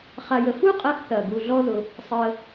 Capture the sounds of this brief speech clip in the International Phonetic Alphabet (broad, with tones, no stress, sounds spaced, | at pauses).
χ a˧ j ə˧ f u˦ qʼ ɐː˧ x θ ɐː˨ ɡ u˧ ɮ ɔ˦ ð ʊ˧ | sˤ əː˧